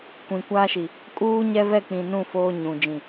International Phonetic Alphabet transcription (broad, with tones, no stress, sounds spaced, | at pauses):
kʷ ĩ˨ kʷ aː˦ ʃ i˨ | kʼ uː˦ ɲ ɛ˦ v ɛ˦˨ k͡p ĩ˨ n ũ˦˨ f oː˦ ɲ ũ˨ d͡ʒ ĩ˨